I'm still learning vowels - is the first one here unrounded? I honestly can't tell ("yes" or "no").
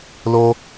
no